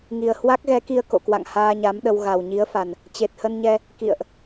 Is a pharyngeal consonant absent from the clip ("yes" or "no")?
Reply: yes